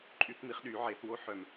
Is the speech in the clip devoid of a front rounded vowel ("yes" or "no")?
no